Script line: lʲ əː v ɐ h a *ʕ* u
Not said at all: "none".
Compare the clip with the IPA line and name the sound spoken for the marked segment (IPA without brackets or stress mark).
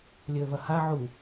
ʕ